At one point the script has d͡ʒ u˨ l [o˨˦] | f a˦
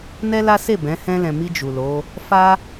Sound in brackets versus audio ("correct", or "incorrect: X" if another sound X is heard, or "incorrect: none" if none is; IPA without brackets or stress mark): correct